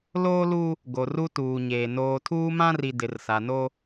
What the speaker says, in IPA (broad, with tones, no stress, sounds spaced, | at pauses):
l oː˦ l u˦ | ɡ o˨ r u˦ t uː˨ ɲ eː˨ n oː˨ tʰ uː˦ m ã˦ r i˨ d ɪ˨ r s a˨ n o˦